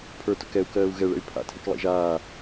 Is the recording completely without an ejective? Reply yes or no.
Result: yes